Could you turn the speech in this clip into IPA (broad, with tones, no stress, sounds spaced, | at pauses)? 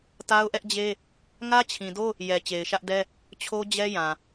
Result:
t a˦ ʊ̯ ʔ ɛ˦ ʔ d͡ʑ e˦ | ŋ ä˦ t͡ɕʰ ĩ˨ d o˦ | j ɛ˨ t͡ɕ e˨ ɪ̯ ʃ ä˦ ʔ d ɛ˦ | t͡ɕʰ o˦ d͡ʑ ɛ˦ j ã˨